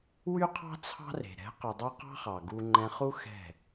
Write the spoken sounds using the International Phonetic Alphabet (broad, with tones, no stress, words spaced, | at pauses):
wy˦qʰɑ̤˦ t͡sʰɑ̤˦re̤˨ ɾɛ̤˨˦qʉ˨dˤʉ˧ qɑ̤˦χɑ˨ ɡu˧ ŋ͡ǃɛ̃˧χu˦ xɛ̤˦˨